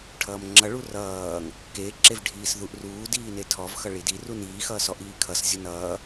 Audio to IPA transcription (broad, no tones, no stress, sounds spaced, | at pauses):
ʈʰ ʌː m ŋ͡ǁ ʌ ɭ u r ʌː ŋ | k e ǁ e v ɖʱ iː s ð u ʔ r uː d iː n e tʰ ɔ v x ʌ ɭ i d i r u n iː x ʌː s ɔ ʔ iː kʰ ʌ s zʲ o n ʌː